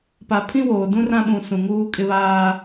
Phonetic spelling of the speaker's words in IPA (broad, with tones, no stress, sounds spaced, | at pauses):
p a˨ pʰ ĩ˦ w oː˨ d ũ˦ r ã˦ ɓ ũ˨ s ũ˨ ŋ uː˦ kʼ ɪ˦ β aː˦